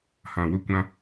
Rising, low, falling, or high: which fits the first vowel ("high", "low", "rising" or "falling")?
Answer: low